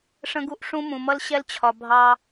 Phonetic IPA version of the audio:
ʂə̃˦ɡu˦ʔʂũ˦ mũ˨mʌ˦l ɕɛ˦lt͡ɕʰɒ˨ bʱɑ˦

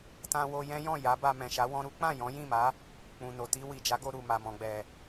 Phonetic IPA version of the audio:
tã˧wo˧jɛ̃˦jɔ̃˦˨ ja˨˦ ba˧mɛ̃˨ʃa˨˦ wɔ̃˧ɾu˦k͡pã˦˨ jɔ̃˨˦jĩ˦˨ma˨˦ | k͡pũ˨no˨ ti˧ wi˨d͡ʒa˨˦ɡo˧ ɾu˨ma˨ mɔ̃˨ɡ͡bɛ˨

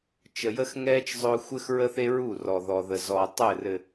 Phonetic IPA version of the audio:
t͡ʃə˨jə˦xŋɛː˦t͡ʃ zˤʊː˦ xʷɘ˦xɹə˦θe˦ɹu˦˨ rɔ˨ðɔ˨ðə˨ zɔ˨tˤɘː˦˨rɘ˨

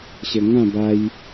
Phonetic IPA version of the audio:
ɕə˧ ŋã˥˧ba˧j

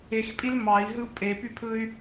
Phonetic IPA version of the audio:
expʼil mɑi̯ɦɯu̯ pʼepypʰɯy̯

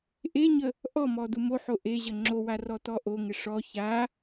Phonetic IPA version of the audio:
ʔeɲə | ʔɔmɔ dumoħo ʔe ʑəŋ͡ǁowa rɔtɔʔoŋɪ ʂɔ ça

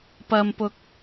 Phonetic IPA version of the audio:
pɐ˨mpʊ˨k̚

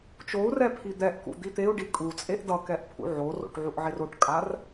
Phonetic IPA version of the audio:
t͡ʃou̯rɛ pʰid̪ɛʔkṵ d̪it̪eu̯ɖi kʼut͡sʼeʔ dʌkɛʔ pʰṵʕoro̰ʈ ʕuʔʕeroʈkʼar

